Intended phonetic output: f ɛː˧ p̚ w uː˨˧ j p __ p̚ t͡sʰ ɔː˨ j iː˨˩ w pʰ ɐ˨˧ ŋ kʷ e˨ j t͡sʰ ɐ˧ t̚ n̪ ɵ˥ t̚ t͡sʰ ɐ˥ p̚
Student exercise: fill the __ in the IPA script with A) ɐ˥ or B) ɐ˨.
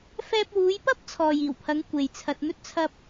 A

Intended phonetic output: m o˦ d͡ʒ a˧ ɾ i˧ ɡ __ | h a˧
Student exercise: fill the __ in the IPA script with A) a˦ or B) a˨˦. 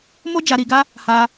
A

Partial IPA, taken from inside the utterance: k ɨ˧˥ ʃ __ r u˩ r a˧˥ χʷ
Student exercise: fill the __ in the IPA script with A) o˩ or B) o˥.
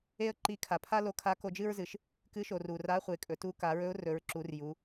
A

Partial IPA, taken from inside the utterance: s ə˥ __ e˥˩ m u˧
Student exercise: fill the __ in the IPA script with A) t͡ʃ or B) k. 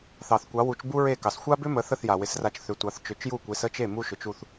A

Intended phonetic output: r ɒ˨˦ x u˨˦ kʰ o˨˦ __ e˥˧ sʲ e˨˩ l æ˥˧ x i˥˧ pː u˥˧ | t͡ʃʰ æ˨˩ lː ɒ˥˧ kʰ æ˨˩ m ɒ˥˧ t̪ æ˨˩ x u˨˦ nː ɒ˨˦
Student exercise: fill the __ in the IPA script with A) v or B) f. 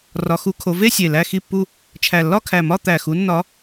A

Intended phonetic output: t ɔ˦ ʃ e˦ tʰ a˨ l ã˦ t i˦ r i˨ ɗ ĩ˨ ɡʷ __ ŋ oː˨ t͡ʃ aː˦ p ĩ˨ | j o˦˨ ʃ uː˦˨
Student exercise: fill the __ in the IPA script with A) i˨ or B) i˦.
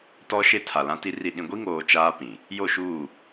B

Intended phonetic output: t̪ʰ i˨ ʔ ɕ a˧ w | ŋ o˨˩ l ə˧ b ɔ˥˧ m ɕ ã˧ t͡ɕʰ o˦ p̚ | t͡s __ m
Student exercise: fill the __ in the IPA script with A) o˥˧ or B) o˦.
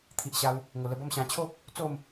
A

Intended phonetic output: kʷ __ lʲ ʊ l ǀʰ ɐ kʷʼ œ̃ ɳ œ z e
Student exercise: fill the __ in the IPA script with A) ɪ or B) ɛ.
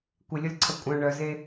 A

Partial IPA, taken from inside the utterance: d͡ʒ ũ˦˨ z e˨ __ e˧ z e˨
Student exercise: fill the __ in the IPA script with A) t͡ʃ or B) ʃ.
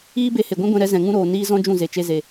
A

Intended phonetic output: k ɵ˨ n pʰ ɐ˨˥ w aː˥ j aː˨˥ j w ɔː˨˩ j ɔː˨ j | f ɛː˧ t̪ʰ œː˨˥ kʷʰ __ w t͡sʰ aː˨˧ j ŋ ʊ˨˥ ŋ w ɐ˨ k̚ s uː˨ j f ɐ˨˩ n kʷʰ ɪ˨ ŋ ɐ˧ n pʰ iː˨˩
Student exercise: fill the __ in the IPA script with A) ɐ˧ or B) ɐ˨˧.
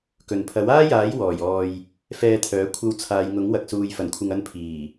A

